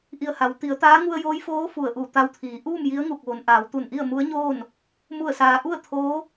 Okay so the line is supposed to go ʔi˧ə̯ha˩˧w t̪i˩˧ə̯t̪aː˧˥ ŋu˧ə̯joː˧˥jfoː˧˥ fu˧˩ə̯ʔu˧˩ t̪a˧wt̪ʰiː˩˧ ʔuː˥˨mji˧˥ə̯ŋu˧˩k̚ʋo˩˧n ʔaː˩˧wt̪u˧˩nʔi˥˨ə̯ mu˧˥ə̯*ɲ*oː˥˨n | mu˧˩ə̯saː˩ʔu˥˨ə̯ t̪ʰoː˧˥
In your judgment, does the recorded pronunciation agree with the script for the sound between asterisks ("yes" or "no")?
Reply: yes